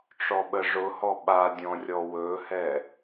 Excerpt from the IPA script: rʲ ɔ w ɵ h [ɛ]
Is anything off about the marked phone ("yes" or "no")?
no